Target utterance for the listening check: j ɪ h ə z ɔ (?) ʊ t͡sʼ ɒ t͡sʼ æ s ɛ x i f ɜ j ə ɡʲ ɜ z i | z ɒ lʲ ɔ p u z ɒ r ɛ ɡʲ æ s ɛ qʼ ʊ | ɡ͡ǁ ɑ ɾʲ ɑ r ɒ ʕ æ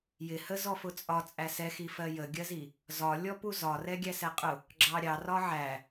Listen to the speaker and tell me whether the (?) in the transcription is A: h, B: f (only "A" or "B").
B